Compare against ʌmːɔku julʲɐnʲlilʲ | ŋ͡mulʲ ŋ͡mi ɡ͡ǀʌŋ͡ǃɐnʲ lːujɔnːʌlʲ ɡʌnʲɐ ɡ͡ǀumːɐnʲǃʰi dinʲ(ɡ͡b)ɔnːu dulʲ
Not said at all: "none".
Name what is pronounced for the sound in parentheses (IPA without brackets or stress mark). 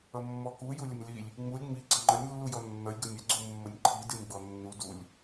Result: ɡ͡b